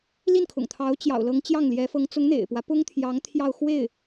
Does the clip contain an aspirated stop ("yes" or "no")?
yes